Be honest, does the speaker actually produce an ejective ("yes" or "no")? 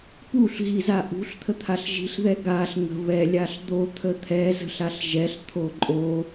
yes